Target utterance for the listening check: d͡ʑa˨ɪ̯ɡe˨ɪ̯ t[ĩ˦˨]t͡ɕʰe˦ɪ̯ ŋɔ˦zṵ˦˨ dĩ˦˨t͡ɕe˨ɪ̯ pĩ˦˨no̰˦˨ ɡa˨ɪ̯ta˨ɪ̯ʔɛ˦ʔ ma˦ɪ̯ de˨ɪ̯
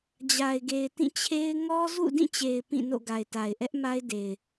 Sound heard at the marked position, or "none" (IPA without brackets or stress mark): ĩ˦˨